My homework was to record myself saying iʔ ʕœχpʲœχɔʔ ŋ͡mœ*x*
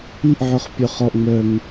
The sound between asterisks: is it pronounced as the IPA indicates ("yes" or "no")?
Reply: no